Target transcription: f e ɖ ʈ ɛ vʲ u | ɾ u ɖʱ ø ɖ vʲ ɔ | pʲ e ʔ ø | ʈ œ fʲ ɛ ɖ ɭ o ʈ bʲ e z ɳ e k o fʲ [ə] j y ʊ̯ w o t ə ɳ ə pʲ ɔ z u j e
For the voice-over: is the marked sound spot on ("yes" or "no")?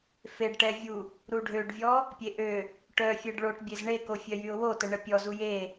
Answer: no